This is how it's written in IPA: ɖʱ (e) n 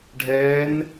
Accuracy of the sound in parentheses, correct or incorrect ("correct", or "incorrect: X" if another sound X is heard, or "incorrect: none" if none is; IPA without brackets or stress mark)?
incorrect: ɛ